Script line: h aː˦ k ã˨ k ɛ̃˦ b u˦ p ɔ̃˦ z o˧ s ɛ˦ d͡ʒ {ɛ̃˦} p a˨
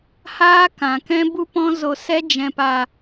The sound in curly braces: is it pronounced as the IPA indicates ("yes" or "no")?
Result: no